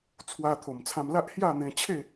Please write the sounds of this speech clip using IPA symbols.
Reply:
t͡sʰ w a˧ t̪ʰ o˨˩ m t͡sʰ ã˧ m l a˦ ʔ h j a˥˧ n̪ ẽ˧ t͡ɕʰ e˥˧

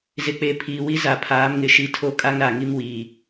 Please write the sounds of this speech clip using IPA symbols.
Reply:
z ɪ˨ k͡p e˨ pʰ iː˨ w i˦ z a˨ pʰ aː˨˦ m ŋ ɪ˨˦ ʃ i˦ tʰ o˦ kʼ a˦ ŋ ɾ a˨ ŋ i˦ m w iː˨

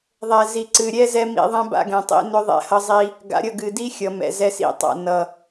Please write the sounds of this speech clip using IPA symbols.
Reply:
ðˤ ɛ˨ z i˨ ǀ ɨ˨ ɾʲ ɛ˦ z ɛ˦ m ḭ˦ ðˤ ɛ̃˦ b a̰˦ ɡ ɛ̃˨ tˤ ḭ˦ n ʏ˦ ðˤ ɛ̰˦ h ʌ˦ zˤ i˦ | ɡ a̰˨ ɾʲ ʌ˦˨ ɡ ɨ˨ d i˦ xʲ ʌ˨ m ɛ̰˨ z ɛ˦ s ḭ˦˨ tˤ a̰˦˨ n ʌ˨

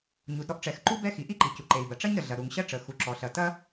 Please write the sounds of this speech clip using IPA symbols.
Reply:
ɲ u˩ d ɾ ɔ˥ ʔ ʈ͡ʂ ɛ˩ x ǃ u˥ b ɛ˥ x i˩ ʔ i˥ ǃ i˩ c u˩ ǃ e˩ i̯ b ɐ˩ ʈ͡ʂ ɐ˥ ɲ ɾ ə˩ ɮ ɐ˩ ɾ u˩ ŋ ɕ ɐ˥ ʈ͡ʂ ə˩ x u˩ ǁ ɔ˩ ɬ ɐ˩ t ɐ˥

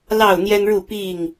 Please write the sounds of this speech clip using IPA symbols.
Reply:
l ɑ˥˨ ʊ̯ n̪ j ɛ˦ n ɻ u˥˨ p i˥˨ ŋ

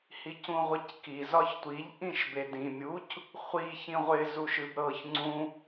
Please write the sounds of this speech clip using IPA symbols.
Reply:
h i c ũ ʁʷ ɪ c k i z ɒ ç tʷ i ʎ ʔ ĩ ʃ b e d ĩ mʲ u c | χʷ i ç ĩ ʁʷ ɪ z u ʃ ɨ b ɾ ɤ ç ŋ͡ǀ ũ

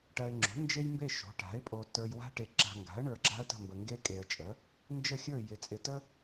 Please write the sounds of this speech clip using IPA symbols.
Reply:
ʈ ɜ˨ ɪ̯ ŋ͡ǁ o̤˩˥ n d͡ʒ e˦ j m b e˦˨ ʃ o̤˩˥ ʈ a̤˩˥ ɪ̯ pʼ o˨ t ə˞˨ j w a̤˦ ʈ e˨ ǁ a̤˨ ŋ ɡ a̤˩˥ ə̯ ɳ ə˞˨ ɡ͡ǁ a̤˦ ə̯ t ə̤˦˨ m b ə˨ ŋ ɡ e˦ kʼ e˨ ə̯ t͡ʃʼ ə˩˥ | n d͡ʒ ə˦˨ xʲ ə˞˦˨ j ɪ˨ t͡sʼ ɪ˨ t ə˦

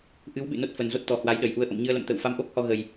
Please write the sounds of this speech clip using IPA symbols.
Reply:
ʔ ɨ˨˦ w ɓ ɨ̰˧˨ n o˦˥ t̚ f ə˨˩ n z o˦˥ t̚ t̪ ɔ˨˩ h w a˨˦ j ɗ ə˧˩ j ʔ u˧ ə̯ ʔ ə̰˧˨ m ɲ ɨ˧ ə̯ l ə̰˧˨ m t̪ ə̰ː˧˨ w f a˧ m ʔ o˦˥ k̚ h ɔ˧ ɣ ə˨˩ j

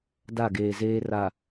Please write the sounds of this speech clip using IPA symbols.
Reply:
d a˦˨ ɡ eː˨ z eː˦ r a˨

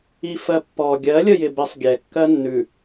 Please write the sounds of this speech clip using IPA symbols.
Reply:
i f ɜ pː ɔ ɡʲ ɜ lʲ ə j ɪ b ɪ sˤ ɡʲ ɛ kː ɜ nː ʉ

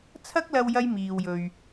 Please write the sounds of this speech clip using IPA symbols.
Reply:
t͡sʰ ɐ˥ k̚ l ɐ˧ w j ɐ˧ j m iː˨ w j ɵ˨ ɥ

